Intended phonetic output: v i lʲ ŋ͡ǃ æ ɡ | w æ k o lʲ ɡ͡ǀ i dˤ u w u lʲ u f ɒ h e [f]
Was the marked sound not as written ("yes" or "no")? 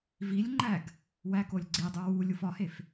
no